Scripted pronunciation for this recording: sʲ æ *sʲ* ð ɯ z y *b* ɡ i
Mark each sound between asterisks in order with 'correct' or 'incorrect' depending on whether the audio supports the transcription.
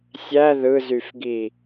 incorrect: none, incorrect: f

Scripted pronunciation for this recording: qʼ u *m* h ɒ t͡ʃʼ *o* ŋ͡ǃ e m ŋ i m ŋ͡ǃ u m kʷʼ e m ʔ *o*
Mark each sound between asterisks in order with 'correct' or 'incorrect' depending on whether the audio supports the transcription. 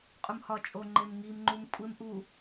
correct, correct, incorrect: u

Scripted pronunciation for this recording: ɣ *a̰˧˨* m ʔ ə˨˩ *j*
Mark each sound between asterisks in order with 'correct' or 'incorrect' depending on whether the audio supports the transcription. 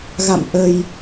correct, correct

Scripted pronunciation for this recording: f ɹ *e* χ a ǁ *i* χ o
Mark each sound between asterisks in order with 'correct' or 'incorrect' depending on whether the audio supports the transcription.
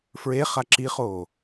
correct, correct

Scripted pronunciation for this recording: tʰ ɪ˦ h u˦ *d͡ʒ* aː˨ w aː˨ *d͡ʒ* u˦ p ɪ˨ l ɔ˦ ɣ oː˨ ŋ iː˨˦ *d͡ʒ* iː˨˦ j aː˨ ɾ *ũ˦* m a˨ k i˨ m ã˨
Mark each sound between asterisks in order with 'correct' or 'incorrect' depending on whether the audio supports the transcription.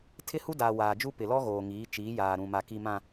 incorrect: d, correct, incorrect: t͡ʃ, incorrect: ũ˨

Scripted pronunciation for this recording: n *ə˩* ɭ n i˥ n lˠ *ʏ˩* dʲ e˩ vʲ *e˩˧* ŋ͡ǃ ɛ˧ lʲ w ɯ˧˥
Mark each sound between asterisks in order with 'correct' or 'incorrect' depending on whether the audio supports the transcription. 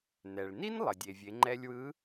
incorrect: ɛ˩, incorrect: ə˩, correct

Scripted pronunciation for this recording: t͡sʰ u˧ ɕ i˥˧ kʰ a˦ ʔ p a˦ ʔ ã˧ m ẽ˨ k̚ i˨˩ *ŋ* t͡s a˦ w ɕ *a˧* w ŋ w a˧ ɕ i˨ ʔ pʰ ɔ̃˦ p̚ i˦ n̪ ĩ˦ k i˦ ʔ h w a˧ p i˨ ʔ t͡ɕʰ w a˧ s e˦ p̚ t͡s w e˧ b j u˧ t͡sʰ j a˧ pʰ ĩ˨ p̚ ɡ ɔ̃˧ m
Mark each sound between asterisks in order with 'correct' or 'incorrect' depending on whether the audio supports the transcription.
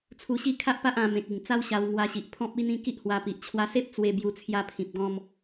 correct, correct

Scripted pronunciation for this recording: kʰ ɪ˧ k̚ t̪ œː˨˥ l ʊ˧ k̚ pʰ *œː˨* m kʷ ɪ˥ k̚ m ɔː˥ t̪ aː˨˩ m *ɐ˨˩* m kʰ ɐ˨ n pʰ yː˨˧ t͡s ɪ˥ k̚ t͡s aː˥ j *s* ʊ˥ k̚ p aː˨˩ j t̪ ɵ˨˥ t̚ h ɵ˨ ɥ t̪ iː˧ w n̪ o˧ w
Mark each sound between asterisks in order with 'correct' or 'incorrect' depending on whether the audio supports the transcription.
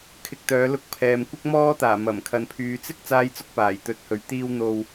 incorrect: ɛː˨, correct, incorrect: t͡s

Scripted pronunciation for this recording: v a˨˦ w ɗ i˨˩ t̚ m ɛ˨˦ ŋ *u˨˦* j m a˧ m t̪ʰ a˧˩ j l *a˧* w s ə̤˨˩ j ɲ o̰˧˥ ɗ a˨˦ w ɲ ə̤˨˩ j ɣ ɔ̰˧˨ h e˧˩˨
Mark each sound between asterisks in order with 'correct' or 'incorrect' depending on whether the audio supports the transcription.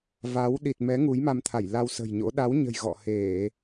correct, correct

